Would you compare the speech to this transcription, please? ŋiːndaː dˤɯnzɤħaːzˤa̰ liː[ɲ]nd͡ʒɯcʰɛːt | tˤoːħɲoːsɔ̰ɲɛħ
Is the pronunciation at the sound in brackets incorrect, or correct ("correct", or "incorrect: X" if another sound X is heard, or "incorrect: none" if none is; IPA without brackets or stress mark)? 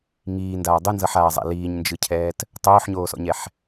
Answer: correct